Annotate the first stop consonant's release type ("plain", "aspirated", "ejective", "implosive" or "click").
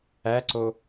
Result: click